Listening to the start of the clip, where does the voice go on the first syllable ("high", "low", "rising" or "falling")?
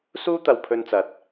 high